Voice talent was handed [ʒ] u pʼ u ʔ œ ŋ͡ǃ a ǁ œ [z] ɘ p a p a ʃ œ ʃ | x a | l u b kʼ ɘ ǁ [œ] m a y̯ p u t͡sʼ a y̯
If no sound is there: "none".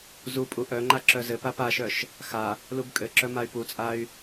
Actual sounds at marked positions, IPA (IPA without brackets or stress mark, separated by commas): z, z, œ